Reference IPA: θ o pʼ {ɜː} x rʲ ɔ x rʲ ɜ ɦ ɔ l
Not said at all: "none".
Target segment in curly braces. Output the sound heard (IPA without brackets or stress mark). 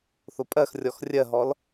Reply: ɜ